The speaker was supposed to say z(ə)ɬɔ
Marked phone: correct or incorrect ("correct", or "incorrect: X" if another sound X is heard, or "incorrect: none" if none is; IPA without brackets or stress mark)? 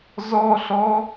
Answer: incorrect: ɔ